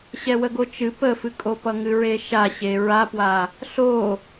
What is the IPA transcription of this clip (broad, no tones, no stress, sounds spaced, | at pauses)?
ɕ ɛ w ə ɡ o t͡ʃ ɨ p ə f ɨ kʼ o p ʌ ŋ ɨ ɹ e ʃ a ɕ e ɹ a p w a | ɬ o